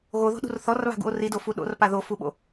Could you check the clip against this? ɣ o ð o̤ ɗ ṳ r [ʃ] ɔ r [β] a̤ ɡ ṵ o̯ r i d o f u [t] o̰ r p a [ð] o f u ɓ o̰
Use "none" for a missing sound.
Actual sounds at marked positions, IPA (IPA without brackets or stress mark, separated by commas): θ, β, ɗ, ð